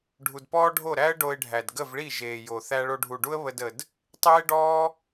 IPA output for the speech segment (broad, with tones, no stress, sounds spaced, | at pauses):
ɖʱ u˨ d p ɔː˦ ɖʱ o˦˨ ɾ æ˦ ə̯ ɖ o˧ ɪ̯ ɖʱ æ˨ d ɡ ə˦˨ v ɭ i˦˨ ʒ eː˨ j o˨ θ æ˧ ɭ o˧ ɖʱ u˨ ɖ u˦ ə̯ β ə˦ d ə˧ d | tˤ eː˦ ɖ ɔː˦